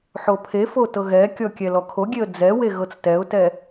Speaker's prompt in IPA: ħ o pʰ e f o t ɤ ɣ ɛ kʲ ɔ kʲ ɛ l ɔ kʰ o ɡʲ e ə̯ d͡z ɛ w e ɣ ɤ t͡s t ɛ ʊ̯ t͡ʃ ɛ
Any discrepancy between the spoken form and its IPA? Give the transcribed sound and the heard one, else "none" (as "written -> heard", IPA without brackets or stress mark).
t͡ʃ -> t